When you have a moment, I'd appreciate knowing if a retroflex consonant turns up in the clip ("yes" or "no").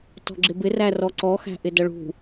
yes